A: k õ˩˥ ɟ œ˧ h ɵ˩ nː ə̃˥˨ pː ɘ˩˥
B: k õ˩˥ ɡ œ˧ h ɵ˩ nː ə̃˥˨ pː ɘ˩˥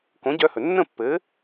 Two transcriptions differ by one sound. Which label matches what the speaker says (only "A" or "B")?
A